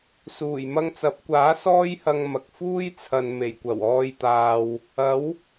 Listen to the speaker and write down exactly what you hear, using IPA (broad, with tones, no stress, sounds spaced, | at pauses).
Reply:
s uː˨˩ j m ɐ˧ ŋ t͡s ɐ˨˥ p̚ kʷ aː˨˥ s ɔː˥ j h ɐ˧ ŋ m ɐ˨ k̚ f uː˥ j t͡sʰ ɐ˨ n m e˨˩ j kʷ ɐ˨˩ w ɔː˧ j t̪ aː˨ w | ɐ˨˥ w